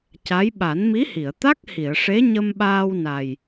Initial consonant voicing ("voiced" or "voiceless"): voiceless